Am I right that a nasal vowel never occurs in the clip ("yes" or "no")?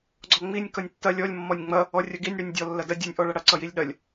yes